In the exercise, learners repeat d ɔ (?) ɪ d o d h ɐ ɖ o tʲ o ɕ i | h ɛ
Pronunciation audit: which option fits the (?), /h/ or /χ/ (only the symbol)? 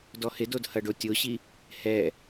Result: h